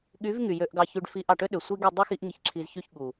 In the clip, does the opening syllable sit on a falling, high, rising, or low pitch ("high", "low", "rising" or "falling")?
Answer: rising